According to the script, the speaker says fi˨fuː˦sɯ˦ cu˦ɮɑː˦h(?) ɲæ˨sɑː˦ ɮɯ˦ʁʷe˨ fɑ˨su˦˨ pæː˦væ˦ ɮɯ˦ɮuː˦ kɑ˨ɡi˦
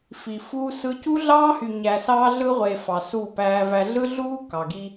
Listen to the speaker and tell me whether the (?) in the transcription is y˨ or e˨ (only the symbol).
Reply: y˨